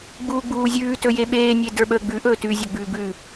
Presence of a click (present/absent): absent